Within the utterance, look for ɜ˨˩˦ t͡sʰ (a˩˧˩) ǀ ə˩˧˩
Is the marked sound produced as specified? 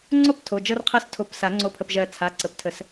yes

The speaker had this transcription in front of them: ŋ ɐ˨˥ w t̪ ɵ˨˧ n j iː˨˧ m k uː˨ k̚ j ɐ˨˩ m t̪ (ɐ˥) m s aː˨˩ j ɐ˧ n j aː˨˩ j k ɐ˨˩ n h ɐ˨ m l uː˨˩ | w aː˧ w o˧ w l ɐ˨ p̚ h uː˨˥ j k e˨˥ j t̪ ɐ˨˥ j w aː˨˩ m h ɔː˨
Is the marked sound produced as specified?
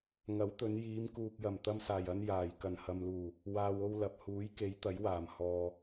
no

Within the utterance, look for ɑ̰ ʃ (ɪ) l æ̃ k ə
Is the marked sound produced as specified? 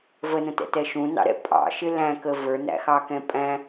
yes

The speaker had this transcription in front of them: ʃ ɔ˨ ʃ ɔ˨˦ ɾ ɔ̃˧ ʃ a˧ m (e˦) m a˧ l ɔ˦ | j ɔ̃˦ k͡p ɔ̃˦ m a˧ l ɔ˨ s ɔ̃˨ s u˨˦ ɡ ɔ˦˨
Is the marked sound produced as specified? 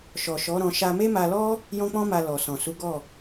yes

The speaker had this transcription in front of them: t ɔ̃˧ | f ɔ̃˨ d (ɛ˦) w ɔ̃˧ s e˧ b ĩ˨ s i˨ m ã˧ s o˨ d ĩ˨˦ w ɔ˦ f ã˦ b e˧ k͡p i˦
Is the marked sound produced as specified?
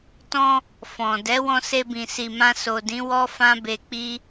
no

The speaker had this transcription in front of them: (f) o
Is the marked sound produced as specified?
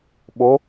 no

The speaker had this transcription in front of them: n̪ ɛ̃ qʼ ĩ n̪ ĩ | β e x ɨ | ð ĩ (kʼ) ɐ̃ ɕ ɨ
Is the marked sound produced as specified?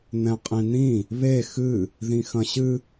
no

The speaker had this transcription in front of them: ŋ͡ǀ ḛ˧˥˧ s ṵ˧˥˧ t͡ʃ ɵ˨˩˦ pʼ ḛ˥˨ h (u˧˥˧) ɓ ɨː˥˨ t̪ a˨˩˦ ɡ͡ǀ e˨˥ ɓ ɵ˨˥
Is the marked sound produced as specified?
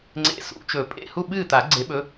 no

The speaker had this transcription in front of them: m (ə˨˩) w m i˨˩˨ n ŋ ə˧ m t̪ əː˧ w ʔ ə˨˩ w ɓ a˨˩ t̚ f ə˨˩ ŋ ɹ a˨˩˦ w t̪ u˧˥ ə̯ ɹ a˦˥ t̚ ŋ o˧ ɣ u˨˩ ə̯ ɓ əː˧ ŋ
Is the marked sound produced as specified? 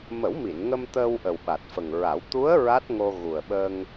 no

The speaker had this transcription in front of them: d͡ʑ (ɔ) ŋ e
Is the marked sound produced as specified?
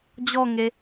yes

